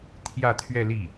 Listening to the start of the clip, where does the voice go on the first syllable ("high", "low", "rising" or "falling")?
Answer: falling